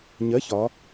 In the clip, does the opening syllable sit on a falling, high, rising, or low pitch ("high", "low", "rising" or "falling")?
rising